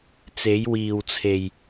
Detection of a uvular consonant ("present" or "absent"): absent